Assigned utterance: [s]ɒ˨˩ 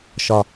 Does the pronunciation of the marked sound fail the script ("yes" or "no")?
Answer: yes